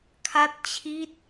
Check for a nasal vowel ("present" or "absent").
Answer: absent